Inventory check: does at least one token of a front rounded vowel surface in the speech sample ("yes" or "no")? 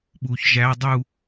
no